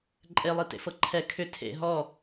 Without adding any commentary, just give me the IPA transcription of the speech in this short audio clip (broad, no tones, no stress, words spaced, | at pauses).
ǃʼelˠitḛfɤ ǃʰɛ kʰʏ tʰḛ ɦɔ